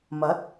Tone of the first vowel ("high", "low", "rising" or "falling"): rising